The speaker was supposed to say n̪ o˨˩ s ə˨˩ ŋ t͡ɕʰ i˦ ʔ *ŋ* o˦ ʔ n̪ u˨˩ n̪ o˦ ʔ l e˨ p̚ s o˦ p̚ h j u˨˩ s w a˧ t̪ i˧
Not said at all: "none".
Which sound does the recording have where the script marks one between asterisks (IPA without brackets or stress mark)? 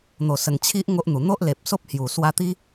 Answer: ŋ